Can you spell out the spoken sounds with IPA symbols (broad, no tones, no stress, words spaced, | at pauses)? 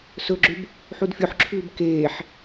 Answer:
sɵɡ͡ǁʉb | ħudfʲoħǁʰʉːb keːħ